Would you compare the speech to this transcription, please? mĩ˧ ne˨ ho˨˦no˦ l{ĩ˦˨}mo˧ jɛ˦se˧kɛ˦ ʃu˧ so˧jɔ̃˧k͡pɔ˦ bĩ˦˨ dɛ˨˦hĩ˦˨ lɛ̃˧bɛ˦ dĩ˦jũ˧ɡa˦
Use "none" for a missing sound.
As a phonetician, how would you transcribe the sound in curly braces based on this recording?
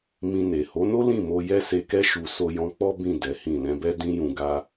ĩ˦˨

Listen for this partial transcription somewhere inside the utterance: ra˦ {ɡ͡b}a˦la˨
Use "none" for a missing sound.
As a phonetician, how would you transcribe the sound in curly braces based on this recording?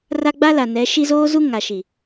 ɡ͡b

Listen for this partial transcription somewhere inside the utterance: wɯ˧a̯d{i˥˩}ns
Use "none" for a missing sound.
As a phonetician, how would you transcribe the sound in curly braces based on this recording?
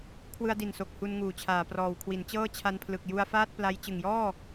i˨˩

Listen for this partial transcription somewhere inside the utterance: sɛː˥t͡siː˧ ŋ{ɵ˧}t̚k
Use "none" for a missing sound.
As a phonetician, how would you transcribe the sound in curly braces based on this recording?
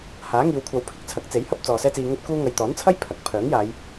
ɵ˥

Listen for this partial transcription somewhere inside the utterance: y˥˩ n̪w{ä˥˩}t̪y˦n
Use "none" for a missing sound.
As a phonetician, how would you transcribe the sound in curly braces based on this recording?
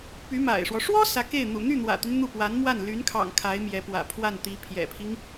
ä̰˨˩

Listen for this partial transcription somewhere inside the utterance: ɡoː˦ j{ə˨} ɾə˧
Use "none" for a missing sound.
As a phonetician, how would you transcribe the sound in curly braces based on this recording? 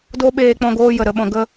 ə˨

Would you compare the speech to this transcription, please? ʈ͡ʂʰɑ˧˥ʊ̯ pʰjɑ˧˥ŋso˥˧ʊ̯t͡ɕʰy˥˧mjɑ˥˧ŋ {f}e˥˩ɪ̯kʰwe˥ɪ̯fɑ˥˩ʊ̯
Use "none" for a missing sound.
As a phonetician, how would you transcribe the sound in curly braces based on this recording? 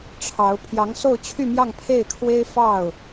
pʰ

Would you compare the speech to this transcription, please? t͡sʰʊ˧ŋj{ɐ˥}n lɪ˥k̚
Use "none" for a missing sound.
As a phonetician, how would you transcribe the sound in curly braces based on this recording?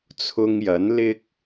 ɐ˨˥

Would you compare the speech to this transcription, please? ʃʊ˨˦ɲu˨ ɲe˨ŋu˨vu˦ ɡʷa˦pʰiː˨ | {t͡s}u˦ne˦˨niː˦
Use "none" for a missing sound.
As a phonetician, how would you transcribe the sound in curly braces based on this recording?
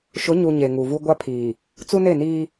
t͡s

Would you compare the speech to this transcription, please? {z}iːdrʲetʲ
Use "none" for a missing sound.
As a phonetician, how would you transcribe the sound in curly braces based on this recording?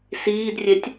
s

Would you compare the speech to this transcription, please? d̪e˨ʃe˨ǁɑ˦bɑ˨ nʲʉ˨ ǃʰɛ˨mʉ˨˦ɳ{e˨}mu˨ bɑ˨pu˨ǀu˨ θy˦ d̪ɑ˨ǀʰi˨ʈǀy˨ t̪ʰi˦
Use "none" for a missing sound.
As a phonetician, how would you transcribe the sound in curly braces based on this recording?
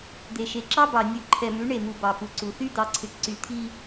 e˨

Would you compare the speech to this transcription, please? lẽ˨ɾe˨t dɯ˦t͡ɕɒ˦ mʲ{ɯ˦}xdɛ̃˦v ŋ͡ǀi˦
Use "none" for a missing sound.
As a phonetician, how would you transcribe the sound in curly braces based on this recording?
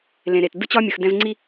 ɯ˨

